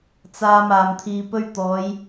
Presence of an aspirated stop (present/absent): present